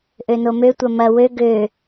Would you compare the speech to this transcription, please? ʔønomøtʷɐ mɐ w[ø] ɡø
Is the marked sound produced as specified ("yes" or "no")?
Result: yes